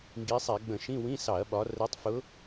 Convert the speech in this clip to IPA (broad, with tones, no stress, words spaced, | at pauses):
ŋɡi˨˦sˤɛ˧˩˧ ɡ͡bə̃˧˩˧ʃĩ˧˥˧ wĩ˧˥˧sɑ˧˩˧ɐ̯ɓɒ˨˦ rɛ˨˦tˤfʊ˨˦